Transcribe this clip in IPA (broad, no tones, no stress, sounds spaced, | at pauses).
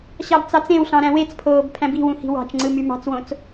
ɕ ɑ b t͡s ɑ t͡s ẽ w ɬ ɑ̃ ɾ æ̃ w e t͡s pʰ oː b pʰ æ̃ b i̤ w ũ h i̤ w ɑ̤ t͡ʃ ŋ͡ǀ ɯ m y m ɑ̤ t͡s w õ t͡s